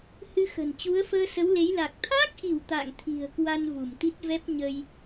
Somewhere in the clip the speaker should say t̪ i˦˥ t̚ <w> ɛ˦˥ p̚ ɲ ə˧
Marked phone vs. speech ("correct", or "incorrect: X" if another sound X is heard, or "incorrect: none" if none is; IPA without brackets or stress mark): incorrect: v